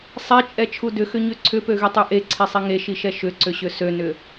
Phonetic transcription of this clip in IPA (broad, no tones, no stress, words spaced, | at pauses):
sˤɛt͡ʃʼɛt͡ʃʰu dʏxʏɲø ǀʰʏpøɣytˤy ʔeǀʰesˤi ŋeʃiʃɛ ʃʏǀʏɕʏ sønʏ